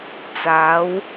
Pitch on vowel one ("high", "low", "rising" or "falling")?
rising